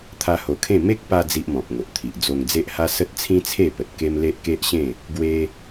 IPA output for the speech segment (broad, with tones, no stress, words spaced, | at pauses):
t̪ʰa˧ho˨˩kʰẽ˥˧ me˦k̚pa˧ d͡zi˦ʔmɔ̃˨p̚ŋo˨ʔt̪ʰi˨ʔ d͡zo˧ŋd͡ze˦ʔha˦ sə˦t̚t͡sʰĩ˦t͡sʰe˥˧pə˨t̚ ke˦mle˦ʔke˦ʔɕẽ˥˧ | ɡwe˧